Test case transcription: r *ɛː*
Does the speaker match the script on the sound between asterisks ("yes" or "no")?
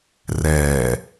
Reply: yes